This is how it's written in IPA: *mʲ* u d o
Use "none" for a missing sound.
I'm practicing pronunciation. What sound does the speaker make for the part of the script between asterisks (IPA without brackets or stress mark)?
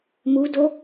m